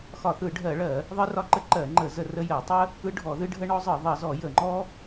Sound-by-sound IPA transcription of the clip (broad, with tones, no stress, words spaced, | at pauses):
xɒ˧˩˧θɯ˧˩˧ɖʱɜ˧˩˧ɭɜ˧˩˧ | ðˤɨ˦rɒ˦ǃə˦ ǃɜ˧˩˧ŋ͡ǃə˧˩˧ zə˧˩˧ rə˦jɜ˧˩˧ tˤə˦ | ɯ˦ɖʱɔ˧˩˧ðɨ˦ɖʱə˦ ɳɔ˦zˤɯ˧˩˧ ðˤə˧˩˧zɔ˧˩˧jə˧˩˧ ŋ͡ǃɔ˦